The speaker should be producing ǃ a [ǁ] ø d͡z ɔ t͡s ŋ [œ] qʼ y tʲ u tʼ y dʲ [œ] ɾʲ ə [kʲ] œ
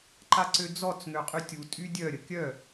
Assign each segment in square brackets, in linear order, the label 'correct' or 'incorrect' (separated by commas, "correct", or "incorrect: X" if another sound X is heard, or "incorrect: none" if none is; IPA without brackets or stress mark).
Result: incorrect: ǀ, incorrect: ø, correct, correct